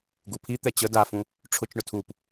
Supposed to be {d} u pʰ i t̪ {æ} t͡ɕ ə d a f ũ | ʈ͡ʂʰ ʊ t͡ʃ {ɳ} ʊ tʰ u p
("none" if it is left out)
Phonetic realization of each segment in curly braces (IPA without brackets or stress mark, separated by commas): ɡ, ɛ, ɳ